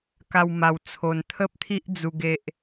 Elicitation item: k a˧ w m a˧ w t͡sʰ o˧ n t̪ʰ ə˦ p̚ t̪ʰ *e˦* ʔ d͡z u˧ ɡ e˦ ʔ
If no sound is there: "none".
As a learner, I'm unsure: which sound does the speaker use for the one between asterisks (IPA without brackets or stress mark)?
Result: i˦